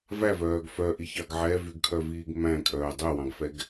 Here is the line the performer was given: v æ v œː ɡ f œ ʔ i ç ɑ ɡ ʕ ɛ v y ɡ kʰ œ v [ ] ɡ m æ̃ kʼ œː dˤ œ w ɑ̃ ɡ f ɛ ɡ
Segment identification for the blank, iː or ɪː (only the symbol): iː